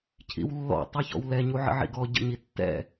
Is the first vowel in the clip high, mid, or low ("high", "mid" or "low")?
high